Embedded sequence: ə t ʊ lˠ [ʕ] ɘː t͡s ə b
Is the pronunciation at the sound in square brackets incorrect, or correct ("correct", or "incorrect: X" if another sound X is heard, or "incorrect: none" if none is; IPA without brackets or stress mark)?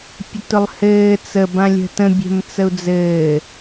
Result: incorrect: h